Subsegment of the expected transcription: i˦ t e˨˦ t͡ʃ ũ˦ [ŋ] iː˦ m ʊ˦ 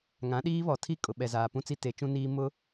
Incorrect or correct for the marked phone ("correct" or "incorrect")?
incorrect